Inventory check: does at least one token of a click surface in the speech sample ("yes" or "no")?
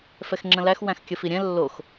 yes